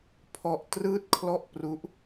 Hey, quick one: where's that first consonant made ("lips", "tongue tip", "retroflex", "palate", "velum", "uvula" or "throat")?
lips